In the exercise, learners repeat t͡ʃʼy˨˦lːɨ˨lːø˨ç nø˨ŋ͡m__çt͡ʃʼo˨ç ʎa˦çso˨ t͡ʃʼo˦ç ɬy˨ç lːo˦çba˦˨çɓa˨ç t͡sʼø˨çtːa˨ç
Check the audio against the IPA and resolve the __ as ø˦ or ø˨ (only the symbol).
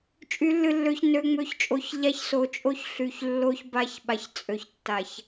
ø˨